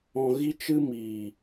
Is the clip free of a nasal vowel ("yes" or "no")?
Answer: no